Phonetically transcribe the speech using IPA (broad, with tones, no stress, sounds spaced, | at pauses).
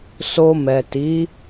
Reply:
s o˧ m ɛ˨ t i˨˦